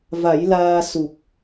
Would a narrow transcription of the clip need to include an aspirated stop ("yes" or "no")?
no